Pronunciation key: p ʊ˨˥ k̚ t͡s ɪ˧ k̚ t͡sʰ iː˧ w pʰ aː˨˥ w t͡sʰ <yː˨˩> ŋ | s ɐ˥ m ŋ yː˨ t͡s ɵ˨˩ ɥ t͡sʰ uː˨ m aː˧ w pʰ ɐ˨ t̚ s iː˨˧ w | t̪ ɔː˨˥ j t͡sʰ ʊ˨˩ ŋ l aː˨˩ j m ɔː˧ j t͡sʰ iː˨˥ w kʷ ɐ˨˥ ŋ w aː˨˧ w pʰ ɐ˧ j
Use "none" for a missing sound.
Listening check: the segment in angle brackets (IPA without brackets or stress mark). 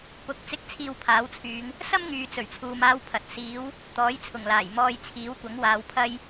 yː˨˧